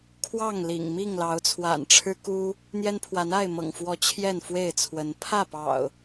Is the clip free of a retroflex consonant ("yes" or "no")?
no